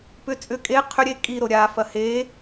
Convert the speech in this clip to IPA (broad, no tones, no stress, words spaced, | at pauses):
pʏ t͡sʼʏ kʼe qʰʏɾʲe kʼiɾo ɾʲafɐ he